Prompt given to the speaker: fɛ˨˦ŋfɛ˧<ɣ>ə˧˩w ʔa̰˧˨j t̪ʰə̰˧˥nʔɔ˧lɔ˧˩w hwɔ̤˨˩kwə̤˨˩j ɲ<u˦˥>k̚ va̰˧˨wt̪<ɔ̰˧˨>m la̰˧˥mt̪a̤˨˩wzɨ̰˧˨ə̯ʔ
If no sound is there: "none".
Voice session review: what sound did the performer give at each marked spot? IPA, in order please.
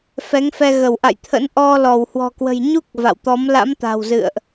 ɣ, u˦˥, ɔ˨˦

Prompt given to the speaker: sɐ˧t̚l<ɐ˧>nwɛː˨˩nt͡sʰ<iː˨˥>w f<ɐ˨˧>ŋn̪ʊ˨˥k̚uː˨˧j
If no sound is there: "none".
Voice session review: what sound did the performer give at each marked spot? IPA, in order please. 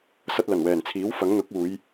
ɐ˨˩, iː˨˥, ɐ˨˥

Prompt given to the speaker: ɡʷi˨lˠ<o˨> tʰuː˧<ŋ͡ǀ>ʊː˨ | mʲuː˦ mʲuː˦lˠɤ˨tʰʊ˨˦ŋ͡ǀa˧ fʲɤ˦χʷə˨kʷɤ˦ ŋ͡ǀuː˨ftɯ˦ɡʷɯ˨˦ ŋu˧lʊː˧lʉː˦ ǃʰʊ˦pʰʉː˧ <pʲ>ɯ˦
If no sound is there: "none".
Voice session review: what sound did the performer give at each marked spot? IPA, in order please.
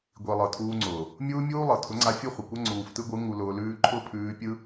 ɤ˨, ŋ͡ǀ, pʲ

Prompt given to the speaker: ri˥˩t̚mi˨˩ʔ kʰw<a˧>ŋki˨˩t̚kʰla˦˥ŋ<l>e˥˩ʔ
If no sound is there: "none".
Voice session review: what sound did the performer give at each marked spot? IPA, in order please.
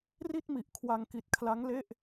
a˧, l

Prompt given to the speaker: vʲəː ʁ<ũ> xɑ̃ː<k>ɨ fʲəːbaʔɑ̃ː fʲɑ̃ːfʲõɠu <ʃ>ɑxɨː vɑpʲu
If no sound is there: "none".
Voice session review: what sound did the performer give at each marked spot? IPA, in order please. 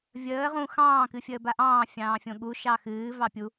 ũ, k, ʃ

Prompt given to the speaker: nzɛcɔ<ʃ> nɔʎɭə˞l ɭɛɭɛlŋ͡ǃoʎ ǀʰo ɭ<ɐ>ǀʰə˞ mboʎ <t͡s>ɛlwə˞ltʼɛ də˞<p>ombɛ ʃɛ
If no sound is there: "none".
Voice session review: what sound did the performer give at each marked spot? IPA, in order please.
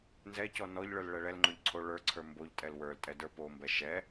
none, ə˞, tʼ, p

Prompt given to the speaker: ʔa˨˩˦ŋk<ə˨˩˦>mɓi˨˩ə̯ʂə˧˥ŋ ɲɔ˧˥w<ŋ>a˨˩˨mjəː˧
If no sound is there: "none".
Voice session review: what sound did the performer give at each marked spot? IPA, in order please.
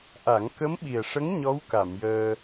ə˧˥, k

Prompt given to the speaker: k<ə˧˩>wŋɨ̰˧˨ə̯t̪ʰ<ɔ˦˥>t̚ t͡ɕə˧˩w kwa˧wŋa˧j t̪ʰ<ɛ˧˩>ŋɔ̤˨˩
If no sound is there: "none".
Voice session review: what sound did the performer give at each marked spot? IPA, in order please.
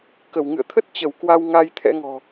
ə˧˩, ə˦˥, ɛ̰˧˥

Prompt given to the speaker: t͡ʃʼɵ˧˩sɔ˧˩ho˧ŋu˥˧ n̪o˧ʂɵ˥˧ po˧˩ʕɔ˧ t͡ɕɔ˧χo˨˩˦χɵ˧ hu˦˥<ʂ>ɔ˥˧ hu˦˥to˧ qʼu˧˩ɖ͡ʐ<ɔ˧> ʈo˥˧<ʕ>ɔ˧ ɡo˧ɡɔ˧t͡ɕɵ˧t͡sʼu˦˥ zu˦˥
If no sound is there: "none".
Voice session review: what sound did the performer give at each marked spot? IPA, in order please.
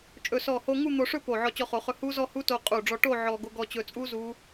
z, ɔ˧, ʕ

